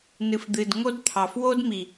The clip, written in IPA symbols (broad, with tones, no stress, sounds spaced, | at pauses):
n ɨ˨ f d̪ ɨ˨ d ŋ o˦ d t̪ʰ ɑ˨ f w o˦ d m i˨